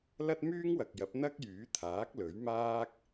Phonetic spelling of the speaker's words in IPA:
lɐ˥t̚myː˥ŋwɐ˨k̚jɐ˨˥p̚ n̪ɐ˥k̚jyː˨˥t̪ʰaː˨˥k̚ lɵ˨˥ɥ maː˥k̚

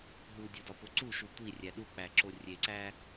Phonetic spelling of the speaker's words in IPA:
ɦudʲodɒpo ǀuʃu tʷirʲæ ɗuk͡pæǁo rʲeǀæ

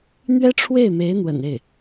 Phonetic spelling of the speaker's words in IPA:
n̪ɥɛ˥ʈ͡ʂʰwe˥˩ɪ̯ me˧˥ɪ̯n̪wə̰˨˩n e˥˩ɪ̯

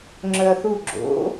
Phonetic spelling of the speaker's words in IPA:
ŋ͡ǁœɐ̯θu ɡ͡ǁo̰

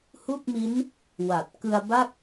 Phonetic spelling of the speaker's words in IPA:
hu˥˩k̚mi˦˥n | wa˨˩t̚ kɯ˧a̯ba˥˩k̚

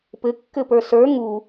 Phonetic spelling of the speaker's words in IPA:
pɘkːɘpə˞ sə˞ ŋu

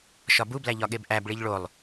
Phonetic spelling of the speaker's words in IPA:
ʃɒbublæ ʎɒɠebʔæbɭiʎ ɭolˠ

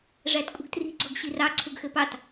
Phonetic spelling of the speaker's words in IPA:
ʐætkʷʼə̤ɡtri̤ ɡ͡ǀɔɡɕirɑ ǀʰuɡxɘpɑt

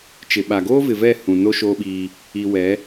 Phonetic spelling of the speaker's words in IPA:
t͡ʃɪ˨ɓa˨ ɡoː˦vɪ˨vɛ˦˨ hũ˨ no˦ ʃoː˦ɓiː˦ | i˨wɛ˨˦

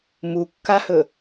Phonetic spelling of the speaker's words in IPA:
mukːahɵ

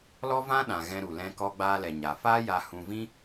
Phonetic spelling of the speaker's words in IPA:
lɔ˦vã˦ɗã˨ ɣɛ̃˧ ɾu˨lɛ̃˧ kɔ˧ɡ͡baː˧lɛ˨ɲa˨ faː˦ ja˧ hũ˧vĩ˦

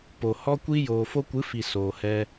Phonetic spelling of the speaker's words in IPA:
po˨ hɔ˧kʷi˧ joː˨fo˧kʷɨ˨˦fi˨ soː˨hɛ˧

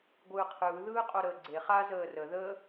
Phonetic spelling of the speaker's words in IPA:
ɡʷɯːqʰɯː ðɯːqʼoɾəːɡ͡ǀe χa zəːrə ðə

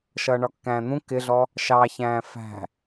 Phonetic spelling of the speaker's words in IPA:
ʃʌːɳɒkːæ̃ːn̪ũ kɪɮɔ | ʃɑçæ̃ː fæ̤

